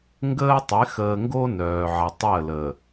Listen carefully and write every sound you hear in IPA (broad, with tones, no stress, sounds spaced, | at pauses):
ŋ ɡ əː˦ tˤ ɪ˨˦ x əː˨ ŋ ɡ o˦ n œː˨ ʕ ə˨ tˤ əː˦˨ l əː˨